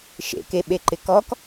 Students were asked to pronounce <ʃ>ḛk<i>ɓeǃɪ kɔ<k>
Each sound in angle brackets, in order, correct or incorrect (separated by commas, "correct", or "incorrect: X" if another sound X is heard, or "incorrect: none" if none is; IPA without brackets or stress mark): correct, incorrect: e, correct